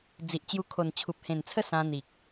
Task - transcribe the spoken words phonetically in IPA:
d͡z i˨ ʔ t͡ɕ j u˧ kʰ o˨˩ n t͡ɕʰ u˨ p̚ h ẽ˨˩ n t͡sʰ ə˥˧ s ã˧ n̪ i˨ k̚

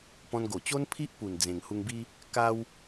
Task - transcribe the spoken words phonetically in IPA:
p ɔ̃˧ n ɡ o˨˩ t͡ɕ o˦ n pʰ i˦ ʔ p u˨˩ n d͡z ẽ˨˩ ŋ h u˧ ŋ b i˦ | k a˦ w

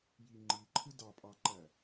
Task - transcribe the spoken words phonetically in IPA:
j i ŋ͡ǃ i ǃʰ ɯ d ɑ pʼ ɑ ǃ æ

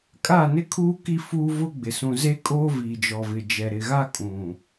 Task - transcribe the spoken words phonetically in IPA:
kʼ aː˦˨ n ɪ˦ kʰ uː˦ k i˦ f uː˦ v ʊ˦ ɡ͡b ɪ˨ s ũ˨ z e˦ kʼ oː˦ v iː˨ d͡ʒ ɔ˨ v ɪ˨ d͡ʒ ɛ˨ ɾ ɪ˨ ɣ a˦ kʼ ũ˨

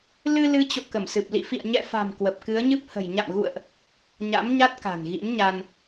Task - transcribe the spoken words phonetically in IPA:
l ɨ˧ l ɨ˨˦ t͡ɕ o̰˧˨ k ə˧˩ m s ɨ˨˩ p̚ l ḭ˧˨ f ḭ˧˨ ə̯ ɲ ɛ̰˧˨ f a̤˨˩ m k w ə˨˩ p̚ k ɨ˨˦ ə̯ ɲ ɨ˦˥ p̚ h ə̤˨˩ j ɲ a̰˧˨ m ɣ ṵ˧˨ ə̯ ʔ | ɲ a̰˧˥ m ɲ a˦˥ t̚ k a̤˨˩ n ɣ ḭ˧˥ n ɲ a˧ n

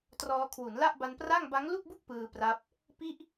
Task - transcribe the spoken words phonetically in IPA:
t r ɔː˧ kʰ w u˩˦ n l a˥˩ ʔ b a˧ n p r a˥˩ ŋ b a˦˥ ŋ l u˥˩ k̚ b u˥˩ k̚ p ɯː˧ p r a˦˥ p̚ | p i˥˩ ʔ

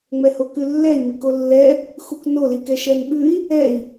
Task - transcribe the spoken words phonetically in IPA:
ŋ͡m ɛ h o k ʉ lː ɛ i̯ m i k o lː ɛ | x u k n o l i k ɛ ʃ ɛ n ɓ ʉ i̯ | ɛ i̯

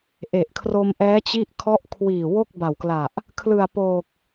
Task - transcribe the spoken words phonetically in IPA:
ʔ e˨˩ ʔ kʰ r o˧ m ʔ ɛː˦˥ t͡ɕ i˥˩ ʔ kʰ ɔ˥˩ ʔ kʰ w iː˨˩ w o˥˩ k̚ b a˨˩ w k l a˨˩ ʔ | kʰ l ɯ˨˩ a̯ p oː˨˩ k̚

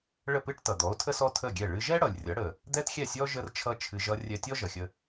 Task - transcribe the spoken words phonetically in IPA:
ɭ ə˥˩ p ɨ˥ ʈ t ʌ˩ d̪ ɔ˩˥ o̯ tʰ ə˥ s ɔ˥ tʰ ə˥˩ ɡʲ ɛ˥˩ ɭ ɨ˧ ʒ ɛ˥ ɽ ʌ˩ lʲ rʲ ʌ˩˥ ɽ ə˩ | d̪ ɛ˥ t xʲ ɛ˥˩ sʲ ɔ˥ ʒ ə˥ r t͡ʃʰ ʌ˥ t͡ʃʰ ɨ˧ ʒ ʌ˧ rʲ ɛ˧ tʲ ɔ˥ ʒ ʌ˩ xʲ ə˧

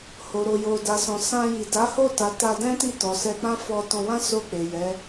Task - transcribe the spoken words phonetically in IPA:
h o˨ ɾ o˨ j o˨ d a˨ s ɔ̃˨ s ã˧ j i˨ d a˨˦ h o˦˨ t a˨ t a˧ d ɛ̃˦ t i˦˨ t ɔ˨ s ɛ˧ k͡p ã˦ f ɔ˧ t ɔ̃˧ w ã˦ s o˦˨ k͡p e˨ j ɛ˨˦

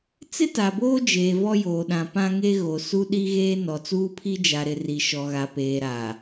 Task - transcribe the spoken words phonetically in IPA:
t͡s ɪ˦ t a˨ b oː˦ d͡ʒ eː˨ v ɔ˦ j oː˨ ɗ ã˨ p ã˦ ŋ e˦ ɣ o˨ s u˦ ɗ i˦ ɣ eː˦ n ɔ˨ t͡s uː˦ pʰ i˦ d͡ʒ a˨ ɾ ɪ˨ r i˨ ʃ ɔ˨ ɣ a˨ p eː˨ ɾ a˨

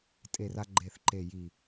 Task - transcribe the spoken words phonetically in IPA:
tʼ e˧˩ r a˧ ɡ͡ǃ e˧˩ θ ǃ e˧˩ j i˧˩

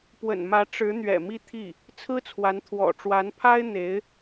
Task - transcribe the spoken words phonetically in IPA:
p w ə̰˨˩ n m ä˧˥ ʈ͡ʂ ɻ̩˧˥ n̪ ɥ ɛ̰˨˩ m i˥˧ t̪ʰ i˥˩ | t͡sʰ ɹ̩˥ t͡sʰ w a˧˥ n t̪ʰ w ɔ̰˨˩ ʈ͡ʂ w a˧˥ n pʰ a˥ ɪ̯ n̪ e˧˥ ɪ̯

